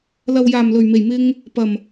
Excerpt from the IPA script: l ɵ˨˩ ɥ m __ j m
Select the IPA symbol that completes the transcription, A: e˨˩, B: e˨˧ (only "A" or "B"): A